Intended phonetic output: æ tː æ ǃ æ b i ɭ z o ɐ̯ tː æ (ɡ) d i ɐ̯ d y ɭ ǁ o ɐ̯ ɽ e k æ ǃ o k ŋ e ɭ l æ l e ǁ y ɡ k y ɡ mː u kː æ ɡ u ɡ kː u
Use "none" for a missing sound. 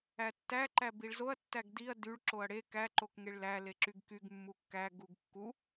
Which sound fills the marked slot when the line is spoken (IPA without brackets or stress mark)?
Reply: ɡ